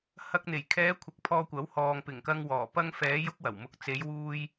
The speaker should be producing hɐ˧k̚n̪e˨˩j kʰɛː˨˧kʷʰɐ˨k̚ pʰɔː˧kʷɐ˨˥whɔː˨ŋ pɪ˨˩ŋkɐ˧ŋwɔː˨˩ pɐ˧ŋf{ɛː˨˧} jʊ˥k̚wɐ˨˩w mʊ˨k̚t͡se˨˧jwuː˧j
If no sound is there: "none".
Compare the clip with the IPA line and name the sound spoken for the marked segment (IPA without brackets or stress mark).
ɛː˨˧